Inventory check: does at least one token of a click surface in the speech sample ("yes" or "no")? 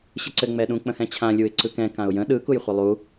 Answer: yes